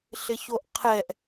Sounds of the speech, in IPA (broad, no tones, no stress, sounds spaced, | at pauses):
ɬ ɪ ç o ʔ qʰ ɛ ʔ